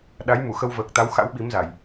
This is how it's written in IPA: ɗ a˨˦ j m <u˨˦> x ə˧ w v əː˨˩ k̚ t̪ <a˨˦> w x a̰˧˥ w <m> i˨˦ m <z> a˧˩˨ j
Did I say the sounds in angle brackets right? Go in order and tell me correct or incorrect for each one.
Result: incorrect: u˧˩, correct, incorrect: ɓ, correct

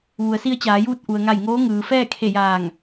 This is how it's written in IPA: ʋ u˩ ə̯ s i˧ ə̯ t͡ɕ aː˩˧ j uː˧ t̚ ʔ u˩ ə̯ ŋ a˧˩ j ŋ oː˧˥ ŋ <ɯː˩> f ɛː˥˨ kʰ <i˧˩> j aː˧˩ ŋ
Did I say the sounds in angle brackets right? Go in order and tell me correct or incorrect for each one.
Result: correct, incorrect: e˧˩

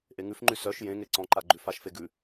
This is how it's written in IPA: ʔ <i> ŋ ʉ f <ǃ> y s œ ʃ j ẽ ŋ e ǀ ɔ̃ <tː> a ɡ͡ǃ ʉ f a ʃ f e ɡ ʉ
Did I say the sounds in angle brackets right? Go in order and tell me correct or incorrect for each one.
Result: incorrect: e, incorrect: ŋ͡ǃ, incorrect: ǃ

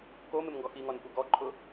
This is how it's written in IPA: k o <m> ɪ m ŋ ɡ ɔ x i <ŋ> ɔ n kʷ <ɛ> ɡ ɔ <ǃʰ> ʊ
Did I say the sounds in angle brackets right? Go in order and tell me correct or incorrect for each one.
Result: correct, correct, correct, correct

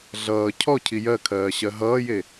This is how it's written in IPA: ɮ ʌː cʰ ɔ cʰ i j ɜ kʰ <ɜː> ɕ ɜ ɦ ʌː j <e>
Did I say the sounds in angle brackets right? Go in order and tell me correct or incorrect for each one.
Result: correct, correct

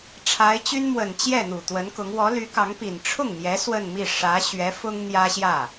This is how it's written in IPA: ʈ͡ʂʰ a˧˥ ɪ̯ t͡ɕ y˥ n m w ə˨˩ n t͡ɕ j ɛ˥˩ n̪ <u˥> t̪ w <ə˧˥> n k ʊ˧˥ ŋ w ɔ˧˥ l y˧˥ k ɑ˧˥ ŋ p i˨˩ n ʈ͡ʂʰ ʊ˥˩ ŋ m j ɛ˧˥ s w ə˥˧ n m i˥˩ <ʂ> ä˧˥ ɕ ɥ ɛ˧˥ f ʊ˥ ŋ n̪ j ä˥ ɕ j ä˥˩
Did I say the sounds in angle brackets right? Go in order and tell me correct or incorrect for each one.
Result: incorrect: u˨˩, correct, correct

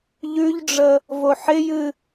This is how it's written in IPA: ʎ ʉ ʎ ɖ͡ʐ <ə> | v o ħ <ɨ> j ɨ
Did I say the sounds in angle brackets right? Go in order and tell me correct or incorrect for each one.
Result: correct, incorrect: ɪ

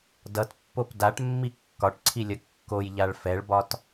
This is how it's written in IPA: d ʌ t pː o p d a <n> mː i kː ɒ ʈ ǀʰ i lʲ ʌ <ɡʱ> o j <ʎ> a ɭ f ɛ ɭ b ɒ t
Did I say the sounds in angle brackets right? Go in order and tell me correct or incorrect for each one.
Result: incorrect: ʈ, incorrect: kː, correct

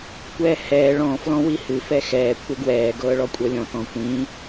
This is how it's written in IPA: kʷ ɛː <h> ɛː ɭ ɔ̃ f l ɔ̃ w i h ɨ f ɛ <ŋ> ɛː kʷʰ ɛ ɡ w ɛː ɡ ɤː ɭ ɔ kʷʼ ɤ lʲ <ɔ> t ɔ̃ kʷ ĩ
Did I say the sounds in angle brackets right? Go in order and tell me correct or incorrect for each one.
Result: correct, incorrect: x, incorrect: ɔ̃

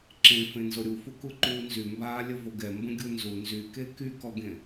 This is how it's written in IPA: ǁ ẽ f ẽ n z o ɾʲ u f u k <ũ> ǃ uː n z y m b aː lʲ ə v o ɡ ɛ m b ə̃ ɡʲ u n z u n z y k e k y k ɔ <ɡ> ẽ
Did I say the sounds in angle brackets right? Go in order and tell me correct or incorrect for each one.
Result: incorrect: u, correct

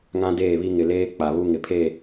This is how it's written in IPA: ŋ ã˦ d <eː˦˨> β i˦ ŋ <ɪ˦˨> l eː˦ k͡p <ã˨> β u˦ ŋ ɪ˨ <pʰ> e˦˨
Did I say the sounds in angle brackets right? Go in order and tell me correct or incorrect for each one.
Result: correct, incorrect: ɪ˨, incorrect: a˨, correct

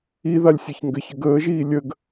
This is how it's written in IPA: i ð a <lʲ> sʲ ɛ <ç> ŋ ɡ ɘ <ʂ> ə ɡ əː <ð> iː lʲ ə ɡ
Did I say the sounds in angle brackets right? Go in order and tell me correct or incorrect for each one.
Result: correct, correct, incorrect: ç, incorrect: ʒ

